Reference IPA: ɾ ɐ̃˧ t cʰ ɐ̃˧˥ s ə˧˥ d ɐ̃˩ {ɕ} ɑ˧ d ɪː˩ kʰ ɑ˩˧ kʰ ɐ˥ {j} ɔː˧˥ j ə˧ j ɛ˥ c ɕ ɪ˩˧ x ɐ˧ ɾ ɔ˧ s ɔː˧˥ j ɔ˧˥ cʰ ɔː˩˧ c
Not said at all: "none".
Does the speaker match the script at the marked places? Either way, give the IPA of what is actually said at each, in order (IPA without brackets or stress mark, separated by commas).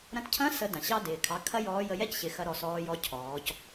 ɕ, j